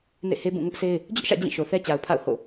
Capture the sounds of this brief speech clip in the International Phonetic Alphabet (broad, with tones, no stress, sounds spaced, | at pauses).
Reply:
n ḛ˦˨ h e˦ b ũ˦˨ ŋ ʊ˦ ʔ s e˦ ɪ̯ | d͡ʑ ʊ˦ ʔ ʃ ä̰˦˨ d͡ʑ ĩ˦˨ ʃ o˨ θ ɛ˦ t͡ɕ a˨ ʊ̯ pʰ a̰˦˨ ʊ̯ h o̰˦˨